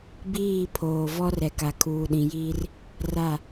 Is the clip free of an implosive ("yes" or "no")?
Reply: no